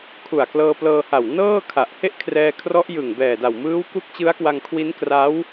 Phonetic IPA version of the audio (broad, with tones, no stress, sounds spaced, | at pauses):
kʰ u˨˩ a̯ k l ɤː˧ p l ɤː˧ h a˨˩ w n ɤː˥˩ kʰ a˨˩ ʔ h e˥˩ ʔ kʰ r ɛː˧ kʰ r ɔ˦˥ ʔ j ɯ˨˩ ŋ b ɛː˨˩ d a˨˩ w m ɯː˦˥ w k u˦˥ k̚ t͡ɕ ɯ˦˥ a̯ k w a˧ ŋ kʰ w i˦˥ n k r a˦˥ w